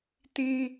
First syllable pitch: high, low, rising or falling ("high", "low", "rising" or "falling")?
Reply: high